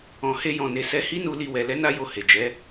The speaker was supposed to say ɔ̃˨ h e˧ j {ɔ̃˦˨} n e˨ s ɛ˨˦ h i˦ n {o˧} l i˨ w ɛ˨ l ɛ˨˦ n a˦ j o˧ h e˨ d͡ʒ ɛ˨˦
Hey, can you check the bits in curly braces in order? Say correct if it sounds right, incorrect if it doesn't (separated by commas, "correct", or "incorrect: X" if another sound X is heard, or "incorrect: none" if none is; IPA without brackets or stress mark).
incorrect: ɔ̃˨, incorrect: u˧